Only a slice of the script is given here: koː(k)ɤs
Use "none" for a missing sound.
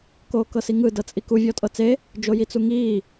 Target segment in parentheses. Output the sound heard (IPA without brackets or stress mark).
k